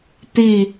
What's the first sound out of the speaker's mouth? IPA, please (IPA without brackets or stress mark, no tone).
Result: t̪